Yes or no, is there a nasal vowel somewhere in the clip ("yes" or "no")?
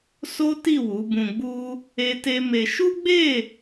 yes